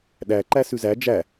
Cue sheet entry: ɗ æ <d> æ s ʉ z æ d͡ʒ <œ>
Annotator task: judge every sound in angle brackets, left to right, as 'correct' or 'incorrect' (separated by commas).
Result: incorrect, incorrect